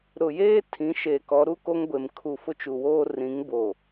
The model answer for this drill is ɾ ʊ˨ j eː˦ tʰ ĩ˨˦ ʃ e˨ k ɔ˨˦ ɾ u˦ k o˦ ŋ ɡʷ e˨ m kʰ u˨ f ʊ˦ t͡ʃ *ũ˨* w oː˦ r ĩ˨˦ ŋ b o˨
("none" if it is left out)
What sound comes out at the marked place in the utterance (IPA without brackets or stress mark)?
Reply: u˨